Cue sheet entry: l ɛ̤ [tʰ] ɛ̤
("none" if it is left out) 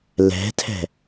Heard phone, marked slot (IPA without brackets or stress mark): tʰ